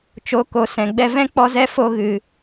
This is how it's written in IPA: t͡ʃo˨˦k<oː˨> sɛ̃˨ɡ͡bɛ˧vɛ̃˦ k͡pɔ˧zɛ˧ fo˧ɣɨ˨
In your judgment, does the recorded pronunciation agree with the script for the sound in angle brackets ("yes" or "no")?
no